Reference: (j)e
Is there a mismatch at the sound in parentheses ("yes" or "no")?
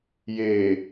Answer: no